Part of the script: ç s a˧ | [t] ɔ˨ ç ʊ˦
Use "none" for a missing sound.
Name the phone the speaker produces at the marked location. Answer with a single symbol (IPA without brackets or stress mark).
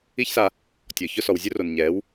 tʲ